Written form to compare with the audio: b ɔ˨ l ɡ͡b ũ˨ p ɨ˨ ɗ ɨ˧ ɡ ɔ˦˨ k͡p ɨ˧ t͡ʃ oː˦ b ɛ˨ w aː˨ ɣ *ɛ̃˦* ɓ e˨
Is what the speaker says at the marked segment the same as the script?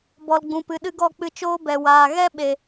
no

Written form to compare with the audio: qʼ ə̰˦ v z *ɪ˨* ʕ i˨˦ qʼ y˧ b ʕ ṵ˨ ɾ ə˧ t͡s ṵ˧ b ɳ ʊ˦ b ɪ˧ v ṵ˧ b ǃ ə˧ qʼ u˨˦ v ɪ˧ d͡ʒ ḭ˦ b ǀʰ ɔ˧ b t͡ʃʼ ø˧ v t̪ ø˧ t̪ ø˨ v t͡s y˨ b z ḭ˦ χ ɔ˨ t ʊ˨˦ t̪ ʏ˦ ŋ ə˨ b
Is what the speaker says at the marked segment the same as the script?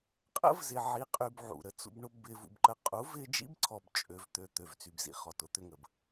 yes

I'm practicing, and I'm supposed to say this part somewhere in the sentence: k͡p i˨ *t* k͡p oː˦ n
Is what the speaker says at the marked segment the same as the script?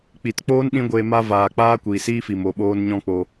yes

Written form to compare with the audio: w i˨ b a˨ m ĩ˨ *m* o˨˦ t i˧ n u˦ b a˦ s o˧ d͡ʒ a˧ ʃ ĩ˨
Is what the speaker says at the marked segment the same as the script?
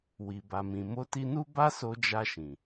yes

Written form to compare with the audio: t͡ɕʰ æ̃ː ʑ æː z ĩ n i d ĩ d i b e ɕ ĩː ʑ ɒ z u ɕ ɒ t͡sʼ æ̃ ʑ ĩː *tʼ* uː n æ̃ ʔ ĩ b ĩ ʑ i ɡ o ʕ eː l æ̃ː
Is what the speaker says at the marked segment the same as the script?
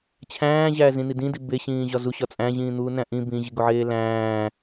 no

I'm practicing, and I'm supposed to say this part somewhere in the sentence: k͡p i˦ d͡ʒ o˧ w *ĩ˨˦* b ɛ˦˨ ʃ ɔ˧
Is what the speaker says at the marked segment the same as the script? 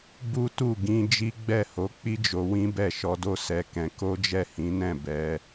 no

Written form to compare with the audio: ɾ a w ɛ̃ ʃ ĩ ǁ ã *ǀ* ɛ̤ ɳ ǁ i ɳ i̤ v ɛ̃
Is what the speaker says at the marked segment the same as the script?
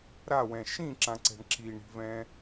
yes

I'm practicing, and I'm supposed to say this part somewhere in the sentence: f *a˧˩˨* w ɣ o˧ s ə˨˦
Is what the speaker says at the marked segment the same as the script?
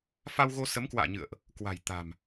no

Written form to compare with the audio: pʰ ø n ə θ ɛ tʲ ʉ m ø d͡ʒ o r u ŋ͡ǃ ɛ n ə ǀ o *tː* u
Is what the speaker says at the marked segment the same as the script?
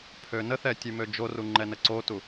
no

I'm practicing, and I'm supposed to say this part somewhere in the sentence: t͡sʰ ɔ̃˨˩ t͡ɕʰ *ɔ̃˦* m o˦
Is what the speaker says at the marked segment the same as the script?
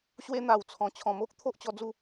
no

